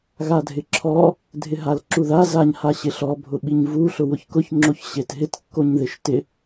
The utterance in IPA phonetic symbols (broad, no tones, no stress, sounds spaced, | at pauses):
ɣ a dʱ ɪ ǁʰ ɔ | dʱ ɪ ɦ a l ǁ u ð a z a ɲ h a ɕ ɪ ɬ ɔ bʱ ʊ ɓ i ɲ v u ɬ ʊ w ʊ ç k ʊ ç ŋ͡ǁ o ç ɕ e t ɦ ɪ t kː o ɲ ð ɪ ʃ t ɪ